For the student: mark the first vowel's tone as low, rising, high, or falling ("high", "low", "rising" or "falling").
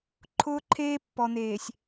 high